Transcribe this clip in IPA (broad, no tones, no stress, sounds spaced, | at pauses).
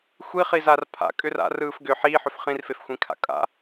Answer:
xʷ i χ i z a r pʰ a̰ kʼ ʏ r a̰ r ɯː f ɡ ʏ ħ iː ħ ʏ f χ ĩ r f e f xʷ ĩ kʰ a̰ kʼ a̰